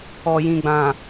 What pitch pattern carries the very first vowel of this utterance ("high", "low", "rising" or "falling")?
low